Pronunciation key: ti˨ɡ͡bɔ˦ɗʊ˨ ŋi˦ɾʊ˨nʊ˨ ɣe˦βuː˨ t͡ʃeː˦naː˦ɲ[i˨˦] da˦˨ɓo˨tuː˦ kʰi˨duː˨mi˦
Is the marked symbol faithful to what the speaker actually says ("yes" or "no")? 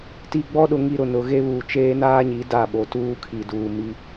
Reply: yes